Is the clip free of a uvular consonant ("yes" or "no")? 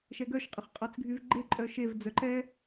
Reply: no